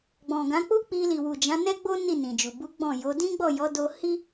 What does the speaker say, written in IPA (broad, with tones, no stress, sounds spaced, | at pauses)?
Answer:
ɡ͡b ɔ̃˨ ɡ ã˨˦ k͡p u˦ k͡p i˧ l i˨ w u˨ d͡ʒ ã˨˦ n ɛ˦ ɡ͡b o˦ n i˦˨ n ĩ˨ d͡ʒ u˨ b u˨˦ ɡ͡b ɔ̃˦˨ j o˨˦ d ĩ˦ ɡ͡b ɔ˦˨ j ɔ˨˦ d o˧ h i˦